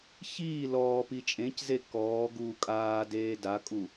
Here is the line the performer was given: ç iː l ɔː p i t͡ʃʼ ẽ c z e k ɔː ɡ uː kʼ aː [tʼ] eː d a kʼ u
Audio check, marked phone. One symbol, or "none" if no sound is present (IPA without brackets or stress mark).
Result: d